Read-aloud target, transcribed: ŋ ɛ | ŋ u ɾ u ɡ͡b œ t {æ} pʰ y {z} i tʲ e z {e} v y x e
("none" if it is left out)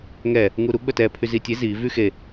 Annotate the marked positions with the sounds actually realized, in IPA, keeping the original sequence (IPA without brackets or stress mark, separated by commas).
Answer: ɛ, z, i